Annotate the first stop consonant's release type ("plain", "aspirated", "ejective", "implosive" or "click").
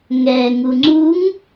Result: click